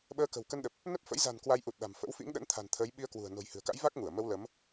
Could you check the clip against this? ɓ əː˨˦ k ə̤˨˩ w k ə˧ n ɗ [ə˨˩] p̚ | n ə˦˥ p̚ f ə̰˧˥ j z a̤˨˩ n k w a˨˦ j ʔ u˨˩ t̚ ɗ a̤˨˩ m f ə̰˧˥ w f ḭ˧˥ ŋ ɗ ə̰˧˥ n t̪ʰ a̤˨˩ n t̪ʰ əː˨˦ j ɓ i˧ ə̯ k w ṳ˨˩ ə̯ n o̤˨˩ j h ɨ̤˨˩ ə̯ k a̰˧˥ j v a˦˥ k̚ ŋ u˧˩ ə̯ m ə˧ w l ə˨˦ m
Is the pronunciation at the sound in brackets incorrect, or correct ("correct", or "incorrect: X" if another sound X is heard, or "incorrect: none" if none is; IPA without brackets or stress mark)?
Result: correct